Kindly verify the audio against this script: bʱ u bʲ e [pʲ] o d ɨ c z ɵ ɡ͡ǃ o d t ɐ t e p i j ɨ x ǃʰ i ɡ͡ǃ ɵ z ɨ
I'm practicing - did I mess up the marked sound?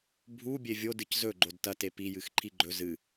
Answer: yes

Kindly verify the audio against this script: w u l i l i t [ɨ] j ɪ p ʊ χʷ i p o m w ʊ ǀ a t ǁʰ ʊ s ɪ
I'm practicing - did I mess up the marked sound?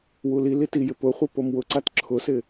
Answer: yes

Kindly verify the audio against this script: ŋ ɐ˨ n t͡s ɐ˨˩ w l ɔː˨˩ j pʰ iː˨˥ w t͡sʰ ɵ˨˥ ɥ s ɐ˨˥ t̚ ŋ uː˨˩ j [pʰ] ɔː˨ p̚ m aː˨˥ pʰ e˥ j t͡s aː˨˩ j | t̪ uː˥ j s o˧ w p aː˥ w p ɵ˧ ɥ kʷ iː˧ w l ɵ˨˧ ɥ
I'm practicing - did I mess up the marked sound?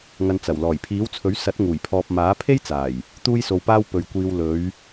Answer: no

